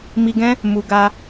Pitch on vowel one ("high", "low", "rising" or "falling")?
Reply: low